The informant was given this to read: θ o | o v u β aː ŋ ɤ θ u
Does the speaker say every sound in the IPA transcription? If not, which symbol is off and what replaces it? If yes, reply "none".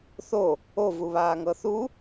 none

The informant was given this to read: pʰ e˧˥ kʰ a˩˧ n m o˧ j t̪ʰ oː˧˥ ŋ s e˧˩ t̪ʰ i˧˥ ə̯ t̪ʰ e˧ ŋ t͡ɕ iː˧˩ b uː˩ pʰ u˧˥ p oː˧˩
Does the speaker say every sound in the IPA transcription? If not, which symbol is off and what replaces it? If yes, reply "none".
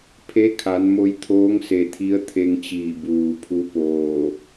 none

